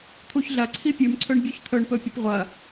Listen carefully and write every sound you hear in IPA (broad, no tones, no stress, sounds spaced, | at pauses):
t̪ʰ u ç ɮ ɐ ǀʰ i pʲ ʉ m ǀʰ ɵ ɳ bʲ ʉ ç t̪ʰ ɵ ɳ p ɵ pʲ ɵ p ʁʷ ɐ